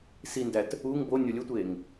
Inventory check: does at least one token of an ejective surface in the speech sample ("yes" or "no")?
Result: no